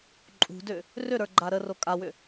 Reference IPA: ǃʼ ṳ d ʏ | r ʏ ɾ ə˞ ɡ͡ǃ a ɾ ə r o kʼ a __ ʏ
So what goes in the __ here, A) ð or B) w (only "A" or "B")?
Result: B